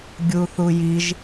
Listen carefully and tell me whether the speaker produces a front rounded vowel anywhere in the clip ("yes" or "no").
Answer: no